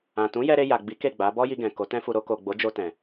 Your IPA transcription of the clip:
ã˨ t ũ˨˦ j ɛ˧ ɾ e˧ j a˨ ɡ͡b i˨˦ k e˦˨ ɡ͡b a˨˦ b ɔ˦ j i˧ ɡ ɛ̃˨ k o˨˦ t ɛ̃˦ f u˧ ɾ o˧ k o˨ ɡ͡b o˨˦ d͡ʒ o˧ t ɛ̃˨

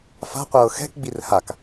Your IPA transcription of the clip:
f a̤ qʷ ɤː x ɛ̤ k ɡ͡b i r h a k

